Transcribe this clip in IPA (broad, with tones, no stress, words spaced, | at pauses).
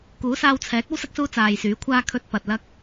kuː˨˥saː˧w t͡sʰɛː˨˥k̚ ɐ˥wsɐ˥k̚suː˧ t͡saː˨jsyː˨˥kʷʰaː˥ kʰɵ˧t̚ pɐ˨t̚lɐ˥k̚